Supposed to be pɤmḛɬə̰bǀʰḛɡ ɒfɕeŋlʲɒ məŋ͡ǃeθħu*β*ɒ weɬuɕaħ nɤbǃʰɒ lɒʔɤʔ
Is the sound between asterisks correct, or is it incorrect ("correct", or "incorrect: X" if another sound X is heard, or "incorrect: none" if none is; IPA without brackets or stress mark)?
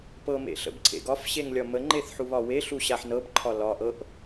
correct